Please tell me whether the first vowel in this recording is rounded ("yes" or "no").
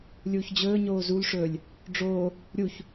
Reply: yes